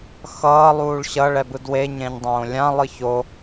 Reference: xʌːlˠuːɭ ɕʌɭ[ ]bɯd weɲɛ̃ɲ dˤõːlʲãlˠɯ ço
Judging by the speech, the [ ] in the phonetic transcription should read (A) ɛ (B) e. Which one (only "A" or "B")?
A